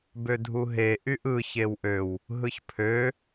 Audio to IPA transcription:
b ø dʱ u ɦ e ʔ y ʔ ɯ ç e w ʔ ø w | ɦ ɯ ç pʰ ø

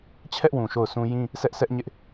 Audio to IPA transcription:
t͡ɕʰ ɛ˦ ʔ w ũ˨ ʃ o˦˨ ʊ̯ s ũ˦ j ĩ˦ | s ɛ˦ ʔ s ɛ˦ ʔ ɲ ɪ˦ ʔ

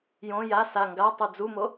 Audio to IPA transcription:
j õ j a s a ŋ ɡ a tˤ u d͡z u m o

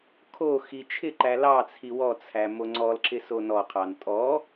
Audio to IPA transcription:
kʰ o x i t͡ʃʰ ɪ ǃ æ l ɑ t͡sʰ i w ɔ t͡sʰ æ m o ŋ͡ǀ ɔ l ǁ ɪ s o n ɔ qʰ ɑ n tʼ ɔ

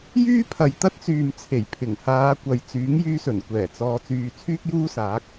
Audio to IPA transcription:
j yː˥ pʰ ɐ˨ j t̪ ɐ˥ t̚ t͡s yː˨ m t͡sʰ e˨˩ j pʰ ɪ˨˩ ŋ h aː˨˧ kʷ ɐ˨ j t͡s yː˨˥ ŋ j yː˧ s ɵ˨˩ n kʷ ɛː˨˩ t͡s ɔː˨˧ t͡s yː˨ t͡sʰ yː˥ k̚ j uː˥ s aː˨˥ k̚

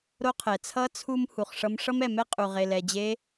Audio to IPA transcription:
ɾ o˧ qʰ ɛ˩ t͡sʰ ʌ˧˥ t͡sʰ u˧ m h u˩ χ ʂ ʌ˧˥ m ʂ ʌ˥ m ɛ˩ m ɛ˥ qʼ u˩ ʁ e˩ l ɛ˩ d͡ʑ e˧˥

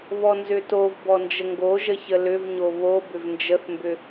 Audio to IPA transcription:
β ɔ n z ʏ t o v b ɔ n d͡ʒ ə ŋ ɡ o ʒ ə ç ə l ʏ v ɲ o β o b ʏ v n d͡ʒ ə θ m b ʏ

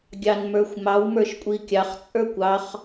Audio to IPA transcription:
ɡʲ ɑ n m ə˞ xʷ m ɑ w m ə˞ ʃ kʷʼ i kʲ ɑ χ t͡sʼ ə˞ kʷ ɑ χ

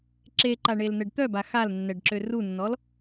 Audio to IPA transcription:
ǁ e ǃ a ɳ e l n̪ ɛ ɖ t̪ œ b a x a l nː ɛ ɖ ǁ ø r u nː ɔ l

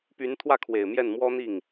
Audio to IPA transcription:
p y˧˥ n t̪ʰ w ä˥˩ kʰ w e˨˩ ɪ̯ m j ɛ˥˩ n m w ɔ˥ n̪ i˥˩ ŋ

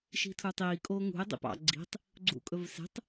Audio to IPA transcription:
ʃ i̤ tʰ u tˤ iː kʼ oː ŋ ṳ e̯ dˤ ḭ p ɑ̰ ɡ͡ǀ i̤ tˤ | ɡ͡ǀ ṵ kʼ ɵ v s e̤ tˤ

